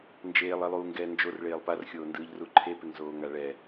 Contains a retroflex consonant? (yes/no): yes